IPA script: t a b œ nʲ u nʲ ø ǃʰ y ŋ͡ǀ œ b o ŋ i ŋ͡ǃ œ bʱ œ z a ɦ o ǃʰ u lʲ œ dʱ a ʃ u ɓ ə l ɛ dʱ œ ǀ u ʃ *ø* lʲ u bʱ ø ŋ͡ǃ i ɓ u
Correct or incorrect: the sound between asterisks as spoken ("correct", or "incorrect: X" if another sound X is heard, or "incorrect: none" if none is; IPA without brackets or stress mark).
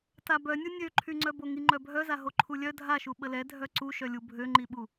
incorrect: œ